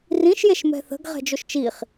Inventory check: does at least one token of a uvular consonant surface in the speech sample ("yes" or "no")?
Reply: yes